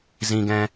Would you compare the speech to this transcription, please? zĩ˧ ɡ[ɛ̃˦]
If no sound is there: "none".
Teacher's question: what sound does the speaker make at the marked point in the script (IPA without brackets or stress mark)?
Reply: ɛ̃˦